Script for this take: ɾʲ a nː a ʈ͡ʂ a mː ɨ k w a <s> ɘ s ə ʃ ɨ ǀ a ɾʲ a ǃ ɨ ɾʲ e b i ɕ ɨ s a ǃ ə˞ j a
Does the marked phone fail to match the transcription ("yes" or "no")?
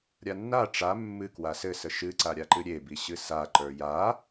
no